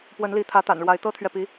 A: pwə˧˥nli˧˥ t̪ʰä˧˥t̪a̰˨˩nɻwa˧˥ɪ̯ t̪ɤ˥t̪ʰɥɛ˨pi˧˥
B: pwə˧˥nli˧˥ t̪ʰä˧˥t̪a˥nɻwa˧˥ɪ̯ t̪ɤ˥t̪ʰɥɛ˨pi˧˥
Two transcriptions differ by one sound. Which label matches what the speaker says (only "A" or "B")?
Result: A